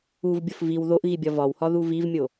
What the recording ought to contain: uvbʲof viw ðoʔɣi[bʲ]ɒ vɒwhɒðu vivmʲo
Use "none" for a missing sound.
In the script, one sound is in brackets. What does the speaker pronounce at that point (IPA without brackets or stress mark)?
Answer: bʲ